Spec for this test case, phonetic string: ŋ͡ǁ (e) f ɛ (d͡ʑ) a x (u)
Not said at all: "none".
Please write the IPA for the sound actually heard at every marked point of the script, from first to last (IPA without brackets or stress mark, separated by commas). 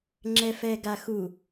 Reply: ɛ, ɡ, u